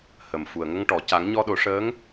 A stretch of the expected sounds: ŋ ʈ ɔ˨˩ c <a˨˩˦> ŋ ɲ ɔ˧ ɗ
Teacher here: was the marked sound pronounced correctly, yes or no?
yes